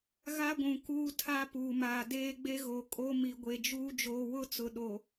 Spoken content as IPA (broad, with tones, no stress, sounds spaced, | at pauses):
ɣ a˦ ɡʷ ũ˨ k uː˦ tʰ a˦ p uː˨ m aː˨ d eː˦ ɡ͡b e˦ ɣ o˨ kʼ o˦ m i˨ ɡʷ e˨ d͡ʒ uː˦ d͡ʒ oː˨ w ʊ˦ t͡s ʊ˨ ɗ o˨